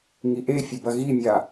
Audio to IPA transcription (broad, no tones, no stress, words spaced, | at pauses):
ŋiʔefʲɘ bɐɣimʲa